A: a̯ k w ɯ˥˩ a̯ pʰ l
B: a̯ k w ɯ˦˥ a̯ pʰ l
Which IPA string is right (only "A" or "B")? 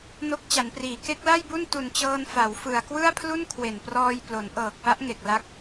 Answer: A